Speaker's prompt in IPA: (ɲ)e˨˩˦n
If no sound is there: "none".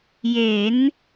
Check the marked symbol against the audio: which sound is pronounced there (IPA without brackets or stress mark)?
j